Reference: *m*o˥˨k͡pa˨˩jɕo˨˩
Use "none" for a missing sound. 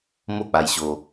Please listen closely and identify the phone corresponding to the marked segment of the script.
m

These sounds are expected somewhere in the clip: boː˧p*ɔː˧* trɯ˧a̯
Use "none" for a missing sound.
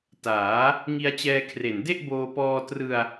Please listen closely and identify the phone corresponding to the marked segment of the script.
ɔː˧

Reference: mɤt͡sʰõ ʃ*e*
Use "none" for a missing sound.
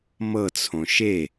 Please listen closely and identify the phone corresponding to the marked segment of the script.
e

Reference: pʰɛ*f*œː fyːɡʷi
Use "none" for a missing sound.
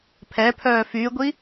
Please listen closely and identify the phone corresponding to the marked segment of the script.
pʰ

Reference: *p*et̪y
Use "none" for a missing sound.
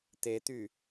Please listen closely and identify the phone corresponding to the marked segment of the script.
t̪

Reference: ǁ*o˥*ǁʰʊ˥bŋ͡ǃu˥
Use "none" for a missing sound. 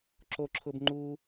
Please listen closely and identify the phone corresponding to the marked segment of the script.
o˥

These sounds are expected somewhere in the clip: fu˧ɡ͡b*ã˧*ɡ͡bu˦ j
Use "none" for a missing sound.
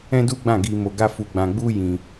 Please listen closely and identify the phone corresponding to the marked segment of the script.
ã˧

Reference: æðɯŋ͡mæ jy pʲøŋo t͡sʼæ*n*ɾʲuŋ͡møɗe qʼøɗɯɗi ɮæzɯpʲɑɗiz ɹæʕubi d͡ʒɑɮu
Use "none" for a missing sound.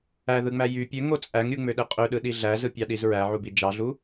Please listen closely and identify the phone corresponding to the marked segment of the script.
ŋ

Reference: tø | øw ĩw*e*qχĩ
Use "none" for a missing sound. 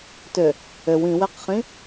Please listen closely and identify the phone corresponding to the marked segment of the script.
e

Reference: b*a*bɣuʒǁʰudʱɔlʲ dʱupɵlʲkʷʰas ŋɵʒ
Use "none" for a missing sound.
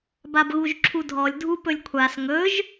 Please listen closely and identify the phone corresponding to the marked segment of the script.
a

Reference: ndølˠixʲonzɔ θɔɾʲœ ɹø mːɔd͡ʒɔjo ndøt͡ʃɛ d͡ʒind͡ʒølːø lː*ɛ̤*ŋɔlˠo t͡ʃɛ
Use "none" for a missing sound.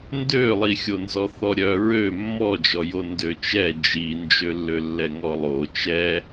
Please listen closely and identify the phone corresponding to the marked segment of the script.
ɛ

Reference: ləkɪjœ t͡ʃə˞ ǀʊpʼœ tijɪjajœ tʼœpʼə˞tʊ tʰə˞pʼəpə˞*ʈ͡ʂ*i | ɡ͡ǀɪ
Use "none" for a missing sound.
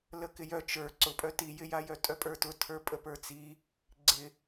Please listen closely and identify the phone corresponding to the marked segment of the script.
t͡s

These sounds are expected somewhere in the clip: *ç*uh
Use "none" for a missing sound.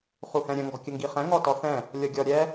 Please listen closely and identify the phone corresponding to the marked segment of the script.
χ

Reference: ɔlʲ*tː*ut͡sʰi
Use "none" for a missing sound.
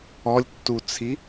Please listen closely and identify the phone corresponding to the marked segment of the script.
tː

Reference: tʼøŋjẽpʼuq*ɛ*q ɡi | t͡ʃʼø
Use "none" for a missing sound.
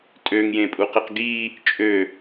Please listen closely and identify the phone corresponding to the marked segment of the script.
e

